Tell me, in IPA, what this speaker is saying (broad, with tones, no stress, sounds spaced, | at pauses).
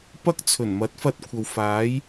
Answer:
p ɐ˥ k̚ t͡sʰ ɵ˨˩ n m ɐ˨˥ t̚ f ɐ˧ t̚ kʷʰ ɐ˨ w f aː˨˥ j